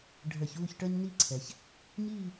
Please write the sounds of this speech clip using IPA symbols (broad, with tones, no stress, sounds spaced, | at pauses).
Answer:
ɖʱ ə˞˧˩˧ ç uː˥˧ ç ʈ ə˞˥ ɲ n i˥˧ ǀʰ ɛ˩ ç | ɲ iː˥˧